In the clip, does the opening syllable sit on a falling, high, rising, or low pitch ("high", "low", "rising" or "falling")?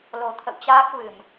low